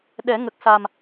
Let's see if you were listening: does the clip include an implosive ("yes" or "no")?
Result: yes